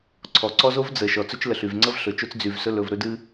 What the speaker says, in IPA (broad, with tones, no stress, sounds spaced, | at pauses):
ǀʰ ɔ˨ ǀ ɔ˦ z o˦ v d͡z ə˨ ʃ ɔ˨ t͡s ɵ˦ t͡ʃ l ə˨ ɬ y˨ v ŋ͡ǀ ə˦ v ɬ ɵ˨ t͡ʃ o˦ t͡s d͡z y˨ v s ɵ˧ l ɵ˨ v ɾ ɵ˦ d ɨ˦